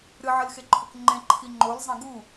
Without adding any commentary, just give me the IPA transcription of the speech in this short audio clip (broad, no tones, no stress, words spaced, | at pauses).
ɾɨʕɨlxeǃʰok ŋ͡ǃẽǃʰi ŋ͡ǃolzˤẽ ɡu